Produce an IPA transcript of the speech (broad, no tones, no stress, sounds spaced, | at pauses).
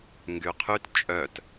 ŋ ɡ y qʰ y t t͡ʃʼ œ t